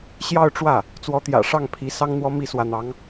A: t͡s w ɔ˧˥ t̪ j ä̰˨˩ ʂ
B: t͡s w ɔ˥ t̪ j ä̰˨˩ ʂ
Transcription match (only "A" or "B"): A